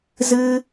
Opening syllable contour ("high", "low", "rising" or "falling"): high